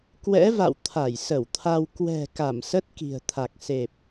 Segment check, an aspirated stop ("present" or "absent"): present